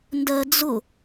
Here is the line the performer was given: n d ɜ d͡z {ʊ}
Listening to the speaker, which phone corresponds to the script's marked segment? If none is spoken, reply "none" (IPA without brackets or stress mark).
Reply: ʊ